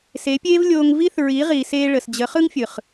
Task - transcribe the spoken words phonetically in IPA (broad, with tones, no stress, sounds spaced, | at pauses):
s e˨˦ pʲ eː˦ v lʲ oː˧ ŋ v i˦ θ ɹ i˨˦ ʁ iː˨ s eː˧ ɭ ə˨ s d͡ʑ ə˨˦ χ ɯ˦ ŋ fʲ ɯ˨ χ